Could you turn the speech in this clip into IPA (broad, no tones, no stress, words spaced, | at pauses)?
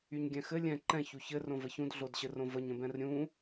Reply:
yɲɡʲɛ̃xɘ lʲɛ̃ ǃɛ̃ çuçɘ rõvəçũd ɮodɕɘrõvəɲ ə̃bɛ̃rɾʲũ